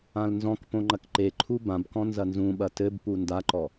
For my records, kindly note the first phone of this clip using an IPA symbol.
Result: ã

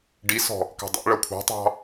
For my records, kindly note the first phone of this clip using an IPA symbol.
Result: ɖ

